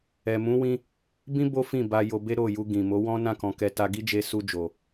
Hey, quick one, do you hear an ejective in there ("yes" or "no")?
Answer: no